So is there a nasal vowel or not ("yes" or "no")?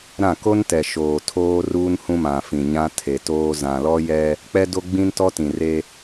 yes